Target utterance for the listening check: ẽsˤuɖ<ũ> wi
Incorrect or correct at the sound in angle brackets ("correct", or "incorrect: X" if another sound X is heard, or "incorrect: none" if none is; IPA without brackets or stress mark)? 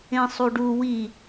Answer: incorrect: u